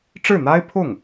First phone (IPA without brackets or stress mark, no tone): ʈ͡ʂ